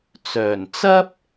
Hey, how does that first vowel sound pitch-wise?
low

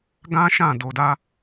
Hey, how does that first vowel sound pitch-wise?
high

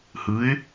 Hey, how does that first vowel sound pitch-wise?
rising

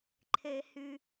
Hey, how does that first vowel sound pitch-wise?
low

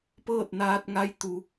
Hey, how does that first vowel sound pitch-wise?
falling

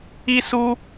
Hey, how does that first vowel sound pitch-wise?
high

